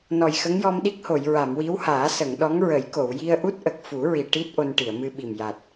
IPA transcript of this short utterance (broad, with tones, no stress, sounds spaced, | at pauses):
n ɔ˨˩ j x ə˧˥ ŋ j ɔ˧ m ɗ i˦˥ k̚ h o˨˩˨ j ɹ a˨˩˨ m w i˧˥ w h aː˨˩˦ s ə˨˩˨ ŋ ɗ ɔ˧˥ ŋ ɹ ə˨˩˦ j k o˨˩˨ w j i˧ ə̯ ʔ u˦˥ t̚ ʔ ə˨˩ k̚ f u˨˩˦ ɹ i˨˩ ʈ i˦˥ t̚ ʔ o˧ n ʈ i˨˩˨ ə̯ m ɨ˧ ɓ i˨˩ m j a˨˩ t̚